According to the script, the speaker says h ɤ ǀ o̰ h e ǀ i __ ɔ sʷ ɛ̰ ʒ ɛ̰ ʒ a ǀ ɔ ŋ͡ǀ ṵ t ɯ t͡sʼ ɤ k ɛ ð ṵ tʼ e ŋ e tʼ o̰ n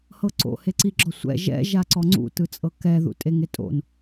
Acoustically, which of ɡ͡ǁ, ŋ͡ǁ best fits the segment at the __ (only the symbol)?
ɡ͡ǁ